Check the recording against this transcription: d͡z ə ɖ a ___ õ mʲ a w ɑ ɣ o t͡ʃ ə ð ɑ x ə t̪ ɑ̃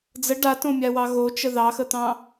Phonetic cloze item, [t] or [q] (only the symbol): t